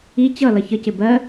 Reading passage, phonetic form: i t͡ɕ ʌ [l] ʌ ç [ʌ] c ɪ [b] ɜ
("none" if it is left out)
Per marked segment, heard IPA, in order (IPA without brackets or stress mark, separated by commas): l, ə, b